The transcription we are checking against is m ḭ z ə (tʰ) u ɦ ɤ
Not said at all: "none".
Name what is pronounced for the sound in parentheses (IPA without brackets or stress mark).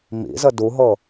d